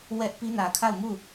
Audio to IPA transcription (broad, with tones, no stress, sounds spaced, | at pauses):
w ɛ˦ ʔ p i˦ n ä˨ kʰ a˦˨ ʊ̯ m u˦˨